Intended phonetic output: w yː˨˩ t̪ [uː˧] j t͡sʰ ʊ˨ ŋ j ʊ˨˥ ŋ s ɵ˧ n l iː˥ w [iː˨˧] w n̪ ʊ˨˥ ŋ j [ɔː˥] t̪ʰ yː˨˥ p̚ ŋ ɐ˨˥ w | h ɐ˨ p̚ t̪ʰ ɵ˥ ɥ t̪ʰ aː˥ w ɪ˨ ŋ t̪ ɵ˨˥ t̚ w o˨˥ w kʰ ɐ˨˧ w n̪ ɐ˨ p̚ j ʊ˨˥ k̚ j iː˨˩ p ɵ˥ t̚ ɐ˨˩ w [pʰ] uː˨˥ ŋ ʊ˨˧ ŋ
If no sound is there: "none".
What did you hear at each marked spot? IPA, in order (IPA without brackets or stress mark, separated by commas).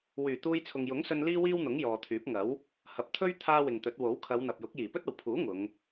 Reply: uː˧, iː˥, ɔː˨, pʰ